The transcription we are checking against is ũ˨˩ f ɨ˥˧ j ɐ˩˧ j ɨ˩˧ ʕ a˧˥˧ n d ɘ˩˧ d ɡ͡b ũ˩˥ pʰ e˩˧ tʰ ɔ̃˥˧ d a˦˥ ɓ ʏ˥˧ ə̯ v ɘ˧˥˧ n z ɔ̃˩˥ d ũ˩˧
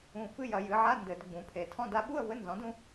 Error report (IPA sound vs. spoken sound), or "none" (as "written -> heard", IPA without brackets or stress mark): ʏ˥˧ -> u˥˧